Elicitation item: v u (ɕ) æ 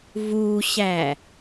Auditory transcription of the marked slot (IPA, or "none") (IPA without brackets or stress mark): ɕ